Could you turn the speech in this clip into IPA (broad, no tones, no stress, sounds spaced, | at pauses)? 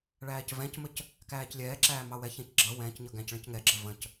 ɭ æː c v ɛ̃ c m ə c | k æː c lʲ ɛː ǁ æː m ɑ w ɛ ç ɛ̃ c ɡ͡ǁ ʌ w ɛ̃ː c ɲ ʌ ɡ æ̃ c ɭ ə̃ c ŋ ɛ ɡ͡ǁ ə v ə̃ c